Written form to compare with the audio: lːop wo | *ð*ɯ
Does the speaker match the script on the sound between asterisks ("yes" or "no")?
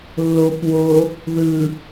yes